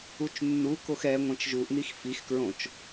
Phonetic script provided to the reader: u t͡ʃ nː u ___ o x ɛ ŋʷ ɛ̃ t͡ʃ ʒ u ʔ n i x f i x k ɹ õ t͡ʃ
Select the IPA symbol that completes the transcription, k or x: k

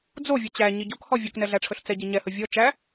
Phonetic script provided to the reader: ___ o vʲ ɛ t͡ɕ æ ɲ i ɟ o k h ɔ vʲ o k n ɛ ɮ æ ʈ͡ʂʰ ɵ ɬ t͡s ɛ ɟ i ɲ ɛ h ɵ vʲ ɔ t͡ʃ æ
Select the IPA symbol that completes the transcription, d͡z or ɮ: d͡z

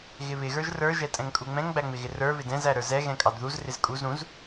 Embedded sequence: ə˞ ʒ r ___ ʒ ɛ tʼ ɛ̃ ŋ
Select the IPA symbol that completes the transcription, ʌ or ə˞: ə˞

